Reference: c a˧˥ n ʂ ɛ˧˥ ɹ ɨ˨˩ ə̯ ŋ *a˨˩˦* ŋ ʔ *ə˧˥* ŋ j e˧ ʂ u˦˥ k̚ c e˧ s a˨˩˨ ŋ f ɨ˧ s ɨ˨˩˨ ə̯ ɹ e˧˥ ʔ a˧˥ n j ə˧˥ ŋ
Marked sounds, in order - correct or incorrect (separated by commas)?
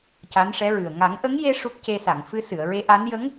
correct, correct